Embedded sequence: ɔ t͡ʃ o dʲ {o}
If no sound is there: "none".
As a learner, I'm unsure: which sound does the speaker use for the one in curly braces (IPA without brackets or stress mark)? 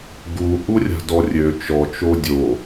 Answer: o